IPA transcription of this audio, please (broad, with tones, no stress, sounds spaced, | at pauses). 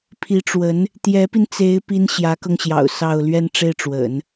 pʰ i˧˥ ʈ͡ʂ w ə˧˥ n | t̪ j ɛ˧˥ p i˧ n t͡s e˧˥ ɪ̯ p i˥ n ɕ j ä˧˥ k ɤ˧ ŋ ɕ j ɑ̰˨˩ ʊ̯ s ɑ˥˧ ʊ̯ l ɥ ɛ˥˧ n ʈ͡ʂ e˥˩ ɪ̯ ʈ͡ʂ w ə̰˨˩˦ n